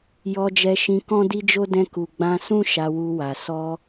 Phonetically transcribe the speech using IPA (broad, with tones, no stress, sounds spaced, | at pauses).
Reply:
j ɔ˧ d͡ʒ ɛ˧ ʃ ĩ˧ k ɔ̃˦ d i˦ d͡ʒ o˦ d ɛ̃˧ k u˨ ɡ͡b ã˧ s ũ˦ ʃ a˧ w u˧ w a˨ s ɔ˧